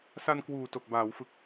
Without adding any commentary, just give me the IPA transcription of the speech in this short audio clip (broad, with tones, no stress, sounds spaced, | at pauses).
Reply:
s a˧ n k w uː˨˩ t o˨˩ k̚ b aː˩˦ w f ɯ˨˩ k̚